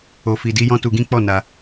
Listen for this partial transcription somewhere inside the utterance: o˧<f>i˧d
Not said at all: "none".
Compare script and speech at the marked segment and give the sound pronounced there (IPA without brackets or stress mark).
f